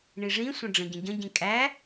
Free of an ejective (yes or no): no